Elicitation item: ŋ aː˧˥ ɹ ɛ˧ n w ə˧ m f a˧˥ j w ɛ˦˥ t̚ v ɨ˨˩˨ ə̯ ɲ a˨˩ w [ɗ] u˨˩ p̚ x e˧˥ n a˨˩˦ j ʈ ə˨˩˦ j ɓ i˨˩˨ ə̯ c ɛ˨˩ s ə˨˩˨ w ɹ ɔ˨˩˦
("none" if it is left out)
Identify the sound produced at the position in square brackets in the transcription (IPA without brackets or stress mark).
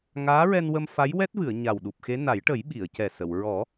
ɗ